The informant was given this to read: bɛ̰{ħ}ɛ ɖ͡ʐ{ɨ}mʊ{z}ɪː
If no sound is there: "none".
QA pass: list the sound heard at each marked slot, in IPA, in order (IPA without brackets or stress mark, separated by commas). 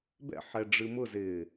ħ, ɨ, z